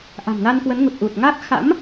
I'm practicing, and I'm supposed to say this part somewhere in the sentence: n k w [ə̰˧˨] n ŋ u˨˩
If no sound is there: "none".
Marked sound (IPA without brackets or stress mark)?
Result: ə˨˦